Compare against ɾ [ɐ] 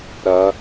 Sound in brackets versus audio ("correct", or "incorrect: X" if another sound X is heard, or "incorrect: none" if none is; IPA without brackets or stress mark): correct